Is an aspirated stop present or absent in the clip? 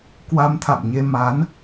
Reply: present